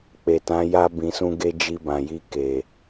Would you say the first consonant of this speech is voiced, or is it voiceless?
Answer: voiceless